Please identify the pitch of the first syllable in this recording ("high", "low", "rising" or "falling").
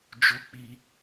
high